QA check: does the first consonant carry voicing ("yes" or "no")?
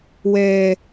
yes